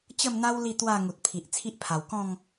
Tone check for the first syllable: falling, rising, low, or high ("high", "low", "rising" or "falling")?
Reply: falling